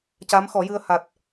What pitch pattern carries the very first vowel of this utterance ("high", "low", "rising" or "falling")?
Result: rising